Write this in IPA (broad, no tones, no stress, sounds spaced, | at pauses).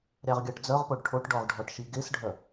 ɾʲ ɑ ʁ ɡʲ ɑ ʈ d͡z œ ʁ p o ɖ ʈʰ o ʈ ɖ ɔ ʁ ɖʱ ɔ ʈ ʃ i ɡ e s ɖʱ œ